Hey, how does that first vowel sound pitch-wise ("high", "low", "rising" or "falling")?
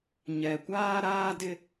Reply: low